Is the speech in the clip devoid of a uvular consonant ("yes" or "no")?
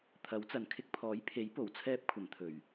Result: yes